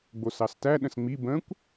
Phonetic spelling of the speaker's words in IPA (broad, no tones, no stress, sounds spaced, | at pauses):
ɡ͡b o s ɑ s t æ ɗ ə̃ s ŋ͡m i b ə̃ kʷ